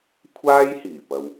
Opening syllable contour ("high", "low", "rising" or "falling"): high